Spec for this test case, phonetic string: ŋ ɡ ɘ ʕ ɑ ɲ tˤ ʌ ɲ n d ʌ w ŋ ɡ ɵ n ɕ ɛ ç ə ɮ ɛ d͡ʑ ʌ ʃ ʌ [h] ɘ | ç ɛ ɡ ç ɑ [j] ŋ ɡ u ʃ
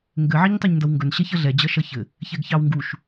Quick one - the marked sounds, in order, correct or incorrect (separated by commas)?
incorrect, incorrect